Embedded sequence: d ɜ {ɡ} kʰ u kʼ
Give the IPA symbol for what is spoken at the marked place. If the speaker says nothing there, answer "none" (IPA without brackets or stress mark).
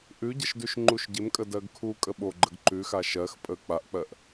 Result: ɡ